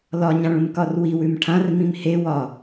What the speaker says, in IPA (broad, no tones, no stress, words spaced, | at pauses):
lɒɲãɭũmkɒr wiwʉm ʈʰãrmĩm he wɒ